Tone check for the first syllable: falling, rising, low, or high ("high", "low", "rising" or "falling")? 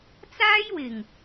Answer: high